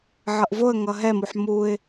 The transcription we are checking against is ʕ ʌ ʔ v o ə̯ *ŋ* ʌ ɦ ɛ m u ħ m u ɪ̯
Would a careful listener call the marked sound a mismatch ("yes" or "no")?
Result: no